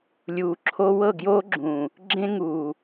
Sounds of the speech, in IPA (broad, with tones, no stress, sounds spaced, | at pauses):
lʲ uː˨ ǁʰ o˦ w ɤ˦˨ ɡ j oː˦ ɡ͡ǁ ũː˨ | ɡ͡ǁ ẽ˦ ŋ uː˨